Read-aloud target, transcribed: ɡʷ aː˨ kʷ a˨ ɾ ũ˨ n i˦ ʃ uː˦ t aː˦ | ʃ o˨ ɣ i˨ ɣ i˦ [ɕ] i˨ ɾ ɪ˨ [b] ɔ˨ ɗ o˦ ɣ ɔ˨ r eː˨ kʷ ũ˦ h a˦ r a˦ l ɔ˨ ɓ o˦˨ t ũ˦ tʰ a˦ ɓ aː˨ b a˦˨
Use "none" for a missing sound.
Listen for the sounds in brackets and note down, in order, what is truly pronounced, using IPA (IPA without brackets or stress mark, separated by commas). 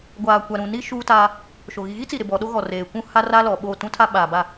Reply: t͡s, b